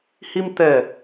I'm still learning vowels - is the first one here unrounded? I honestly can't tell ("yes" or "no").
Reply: yes